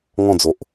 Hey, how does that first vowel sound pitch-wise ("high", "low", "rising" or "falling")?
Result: falling